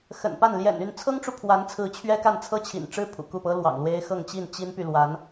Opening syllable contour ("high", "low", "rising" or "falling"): low